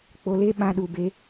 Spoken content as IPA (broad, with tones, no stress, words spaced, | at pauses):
k͡po˧le˦ ɓã˦ɗu˧be˦